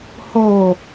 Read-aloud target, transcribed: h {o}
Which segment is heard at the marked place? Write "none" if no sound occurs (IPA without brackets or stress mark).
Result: o